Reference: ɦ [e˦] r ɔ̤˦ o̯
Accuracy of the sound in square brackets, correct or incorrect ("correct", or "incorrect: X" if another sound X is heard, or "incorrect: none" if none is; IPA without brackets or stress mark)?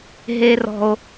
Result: correct